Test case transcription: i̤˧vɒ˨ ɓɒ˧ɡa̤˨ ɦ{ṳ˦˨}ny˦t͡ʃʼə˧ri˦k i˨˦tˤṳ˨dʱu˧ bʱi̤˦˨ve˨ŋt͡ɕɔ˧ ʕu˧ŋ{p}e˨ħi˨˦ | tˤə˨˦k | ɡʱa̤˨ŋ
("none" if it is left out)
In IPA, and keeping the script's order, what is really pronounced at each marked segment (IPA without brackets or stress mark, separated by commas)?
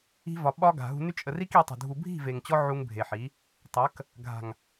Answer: ṳ˧, bʱ